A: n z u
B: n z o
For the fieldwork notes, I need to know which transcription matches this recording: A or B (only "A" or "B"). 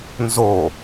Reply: B